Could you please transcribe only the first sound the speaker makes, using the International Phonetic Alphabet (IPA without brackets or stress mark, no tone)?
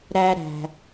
ɾ